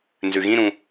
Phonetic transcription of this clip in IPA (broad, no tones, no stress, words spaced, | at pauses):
nzʉɣĩɾũ